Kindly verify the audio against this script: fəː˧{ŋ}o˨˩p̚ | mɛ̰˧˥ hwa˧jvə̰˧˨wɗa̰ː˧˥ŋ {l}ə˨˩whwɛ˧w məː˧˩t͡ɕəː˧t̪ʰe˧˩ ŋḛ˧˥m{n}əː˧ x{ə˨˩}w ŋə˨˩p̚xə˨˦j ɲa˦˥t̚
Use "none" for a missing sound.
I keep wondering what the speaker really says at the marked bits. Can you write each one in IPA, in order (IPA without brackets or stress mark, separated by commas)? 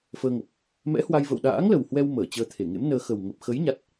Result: ŋ, l, n, ə˨˩